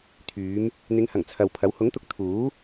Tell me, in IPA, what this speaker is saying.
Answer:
t̪ʰyː˨˧m | n̪ɪ˨˧ŋhɐ˨˩ŋ t͡sʰɐ˨wpʰɐ˨˥w hʊ˨˥ŋt̪ʊ˨˥k̚ t̪ʰuː˨˥

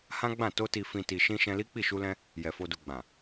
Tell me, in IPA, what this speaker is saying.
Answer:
hã˦ɡ͡bã˦˨ to˧ti˨fĩ˨ ti˨ʃĩ˧ ʃɛ̃˧li˦k͡pi˦˨ ʃu˧lɛ̃˧ | jɛ˨fo˧du˨ɡ͡bã˨

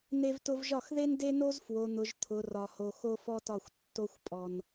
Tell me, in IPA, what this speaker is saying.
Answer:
ne˧vtʊ˧vʒɒ˦˨xðe˦n de˦no˦z fwo˨n̪ʊ˨ʒ t̪ʰʊ˨ rɒ˧ho˧ xo˦fɔ˦tɒ˦˨xʷ tːo˦xʷpʼɔ˧n

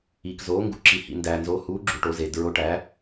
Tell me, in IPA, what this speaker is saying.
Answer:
iː˨k zoː˨˦ŋɡṵ˨˦ ǁi˨ hḭ˨ndæː˨nzo˨˦ huː˨˦ɡ͡ǁu˨ ʈo˨˦zeː˨ dɹo˨˦ʈæː˨˦

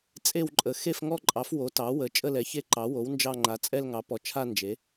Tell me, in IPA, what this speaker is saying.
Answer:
t͡sʼe˥˧wǃʼə˩˥ xe˥˧fŋɔ˥˧ǃʼɑ˩˥f wo˩˥tɑ˩˥wə˩˥ t͡ʃʼə˥˧lɛ˩˥çe˥˧ǃɑ˩˥ wo˩˥w nd͡ʒɑ˥˧ŋ͡ǃa˩˥ t͡sʼɛ˥˧lŋɑ˩˥pɔ˩˥t͡ʃʰa˥˧ nd͡ʒe˩˥

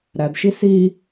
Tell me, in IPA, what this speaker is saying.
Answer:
ɾædʃi si

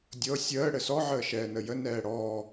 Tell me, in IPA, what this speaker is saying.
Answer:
dʲɤ sʲəː ɽɘsɔʕəː ʃɛːnəjə nɛːɽɔː

